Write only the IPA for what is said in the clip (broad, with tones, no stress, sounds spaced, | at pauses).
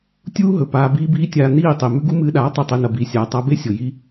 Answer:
tʲ uː˦ ɦ ɵ˨ p aː˧ b iː˦ b iː˦ tʲ aː˧ n iː˦˨ tˤ i˨ m ʉ˦ ɡ u˦ m ɨː˧ ɗ aː˨˦ tˤ ɨ˨ tˤ i˨ n ɐ˨ b iː˨ sʲ aː˨ tˤ a˧ b e˦ sʲ o˨ j i˧